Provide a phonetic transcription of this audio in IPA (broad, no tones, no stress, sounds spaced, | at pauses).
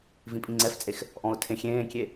v ĩ pʼ ĩ ŋ͡ǀ ɛ f t͡sʼ e x | ʔ ɔ̃ ʊ̯ tʰ ẽ xʲ ẽː kʲ e